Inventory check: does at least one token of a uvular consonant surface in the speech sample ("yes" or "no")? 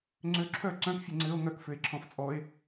no